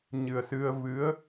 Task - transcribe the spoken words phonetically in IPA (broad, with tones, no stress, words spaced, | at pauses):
ɲɨ˨˩ə̯sɨ˧ə̯ vɨ˧˥ə̯